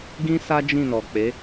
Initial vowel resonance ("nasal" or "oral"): nasal